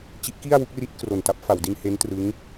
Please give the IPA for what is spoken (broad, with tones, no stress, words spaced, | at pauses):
t͡ɕi˦˥ʔki˥˩a̯wu˦˥k̚ri˦˥t̚ kro˨˩nta˦˥p̚fa˩˦wdi˧n he˦˥ntrɯ˦˥ŋ